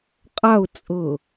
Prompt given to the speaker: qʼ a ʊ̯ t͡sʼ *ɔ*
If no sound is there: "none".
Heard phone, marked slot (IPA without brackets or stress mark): ɤ